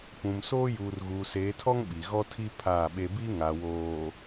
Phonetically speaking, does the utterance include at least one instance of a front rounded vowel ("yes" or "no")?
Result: no